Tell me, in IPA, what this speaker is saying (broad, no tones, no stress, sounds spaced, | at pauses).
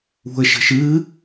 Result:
ṳ ə̯ ʃ ə̤ ʃ ɨː